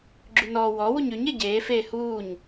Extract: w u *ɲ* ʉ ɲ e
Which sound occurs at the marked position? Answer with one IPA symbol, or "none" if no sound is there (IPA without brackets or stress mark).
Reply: ɲ